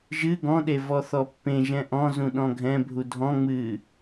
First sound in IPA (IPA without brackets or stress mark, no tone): ʒ